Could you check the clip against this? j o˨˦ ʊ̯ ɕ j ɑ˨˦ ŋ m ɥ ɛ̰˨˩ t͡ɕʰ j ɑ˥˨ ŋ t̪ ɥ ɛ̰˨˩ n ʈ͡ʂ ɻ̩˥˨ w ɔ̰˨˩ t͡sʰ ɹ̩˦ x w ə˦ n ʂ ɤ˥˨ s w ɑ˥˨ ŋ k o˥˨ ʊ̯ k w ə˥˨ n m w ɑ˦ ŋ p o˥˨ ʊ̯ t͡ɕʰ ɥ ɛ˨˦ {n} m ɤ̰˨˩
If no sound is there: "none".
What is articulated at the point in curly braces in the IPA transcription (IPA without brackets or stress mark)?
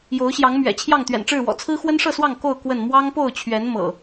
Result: n